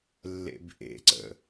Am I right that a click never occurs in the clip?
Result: no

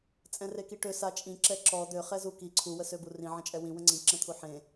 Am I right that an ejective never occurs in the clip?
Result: no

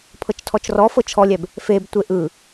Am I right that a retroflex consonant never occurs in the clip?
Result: yes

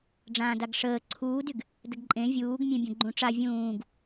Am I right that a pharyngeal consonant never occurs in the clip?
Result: yes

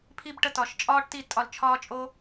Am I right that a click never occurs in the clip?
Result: yes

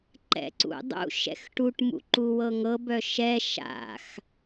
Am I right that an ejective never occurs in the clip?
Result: yes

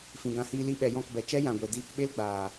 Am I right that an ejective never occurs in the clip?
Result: yes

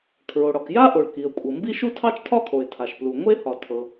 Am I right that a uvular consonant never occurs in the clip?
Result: yes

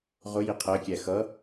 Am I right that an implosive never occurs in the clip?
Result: yes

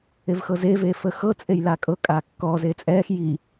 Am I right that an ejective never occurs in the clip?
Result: no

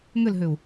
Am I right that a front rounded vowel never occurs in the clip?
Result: no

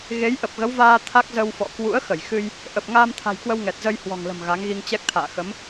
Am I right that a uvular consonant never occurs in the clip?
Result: yes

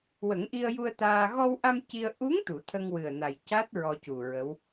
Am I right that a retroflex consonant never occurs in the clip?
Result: yes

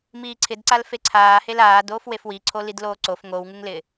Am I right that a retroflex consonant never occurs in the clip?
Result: yes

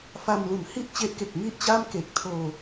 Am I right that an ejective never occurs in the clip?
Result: yes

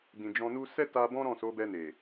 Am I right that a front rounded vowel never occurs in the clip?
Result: yes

